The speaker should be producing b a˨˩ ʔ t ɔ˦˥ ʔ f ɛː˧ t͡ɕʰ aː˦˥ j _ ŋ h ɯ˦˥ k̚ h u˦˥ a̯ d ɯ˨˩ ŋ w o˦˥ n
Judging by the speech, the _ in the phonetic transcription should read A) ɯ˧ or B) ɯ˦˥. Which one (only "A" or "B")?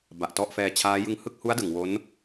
A